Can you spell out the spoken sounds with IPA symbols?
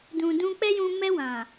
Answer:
d ũ˨ d ũ˧ k͡p ɛ˦ j ũ˧ m ɛ˧ w ã˨

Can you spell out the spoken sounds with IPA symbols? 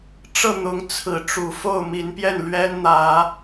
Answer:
ʈ͡ʂ ɤ˥˨ n̪ ʊ˨˦ ŋ t͡sʰ ɹ̩˨˦ ʈ͡ʂ u˨˩ f o˥˨ ʊ̯ m i˨˦ n p j ɛ˥˨ n l ɥ ɛ˦ n n̪ ä˨˦

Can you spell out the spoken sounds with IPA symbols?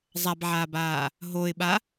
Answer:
zˤ a b ʕ aː b aː | ɦ o ɪ̯ ɓ a

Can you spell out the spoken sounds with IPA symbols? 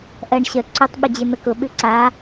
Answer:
ʔ ɜ ɳ ɕ ə ǀ ʏ tˤ ɓ ʏ d͡ʑ e n̪ ə k ʊ ɓ ʉ ǀ a

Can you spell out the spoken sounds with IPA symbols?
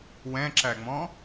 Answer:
w ɛ̃ ǁ æ ŋ͡m ɔ̃

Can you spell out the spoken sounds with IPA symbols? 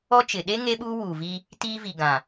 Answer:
ɔ˦ t͡ʃ ɪ˨ ɗ e˦ ŋ e˦ ɓ uː˦ w uː˨ v i˦ | t iː˦ v i˨ ɡ ã˨

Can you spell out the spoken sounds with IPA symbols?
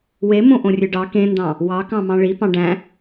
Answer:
w e m õ ʔ õ rʲ ø ɖ ɑ k ẽ n d ɑ̃ | w ɑ k ɑ̃ m ɑ̃ ɭ i p ɑ̃ ɖ æ̃

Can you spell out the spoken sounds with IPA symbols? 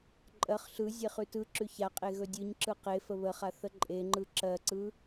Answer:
ǃʼ ɜ χ ɬ ɯ zʲ e χ ʉ t ɯ ǁ ʉ ç a qʼ e ɣ ɵ dʲ ɯ ɲ ǁ ɯ q e f ə β ə χ a θ ə ǃʼ e ŋ͡ǃ ɯ ǁ ɜ ǀ ɯ

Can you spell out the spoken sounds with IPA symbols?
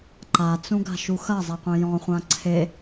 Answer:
ǃ a t͡s ũ ɡ a̤ ʃ u x ɐ zˤ ɛ qʷ ẽ j ɔ̃ χʷ ã ǀʰ e

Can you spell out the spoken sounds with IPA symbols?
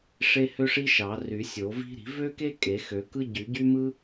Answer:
ʂ e˥ h ø˥ ʂ i˥ ʃ ɑ˨˩˦ r y˨˩˦ sʲ o˨˩˦ v i̤˥ ɾ i̤˨˩˦ v ø˥ k e˥ kʼ e˨˩˦ x ø˨˩˦ k ɯ˥ ɟ y˨˩˦ ɟ y˥ m ɯ˥

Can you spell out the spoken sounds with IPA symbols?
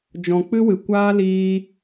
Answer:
d͡ʒ ɔ̃˨ k͡p ɨ˦ w ɨ˨ kʷ aː˦ l iː˧

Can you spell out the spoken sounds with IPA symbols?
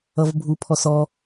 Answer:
ʌ v bʱ u pʰ ɔ s ɔ

